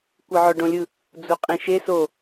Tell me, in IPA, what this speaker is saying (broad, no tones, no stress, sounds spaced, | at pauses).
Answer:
kʷ ɯ ʕ ɔ ɖ õ lʲ ɯ | d͡z u qʼ ĩ ʃ e s o